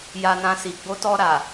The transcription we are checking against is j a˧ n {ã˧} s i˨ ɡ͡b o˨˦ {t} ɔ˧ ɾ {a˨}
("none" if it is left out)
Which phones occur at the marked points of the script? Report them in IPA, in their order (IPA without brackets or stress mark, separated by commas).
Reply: ã˧, t, a˨